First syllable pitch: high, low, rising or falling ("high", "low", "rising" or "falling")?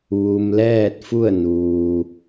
low